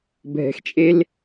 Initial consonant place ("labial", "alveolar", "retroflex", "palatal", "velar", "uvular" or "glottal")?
labial